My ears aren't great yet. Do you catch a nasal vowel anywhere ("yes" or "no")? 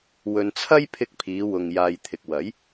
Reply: no